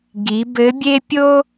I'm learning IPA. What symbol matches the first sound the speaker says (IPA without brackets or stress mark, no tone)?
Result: ɡ